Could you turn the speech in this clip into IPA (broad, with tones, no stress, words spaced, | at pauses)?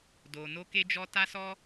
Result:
do˧ no˧ke˧d͡ʒɔ˧ ta˦sɔ˦